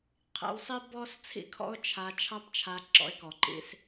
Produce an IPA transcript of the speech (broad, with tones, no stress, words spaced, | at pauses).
qʰḭ˧wsˤi˥ bɔ˥s t͡sʰḭ˥kʰɔ̰˥ʊ̯ t͡ʃʰa˧ t͡ʃʰɑ˥pt͡ʃʰa˧ ǁɔ̰˧ɪ̯kɔ˩ǃḭ˧s